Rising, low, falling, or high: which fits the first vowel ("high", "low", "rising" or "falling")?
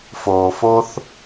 low